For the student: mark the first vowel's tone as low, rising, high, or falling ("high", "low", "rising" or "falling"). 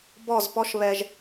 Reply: falling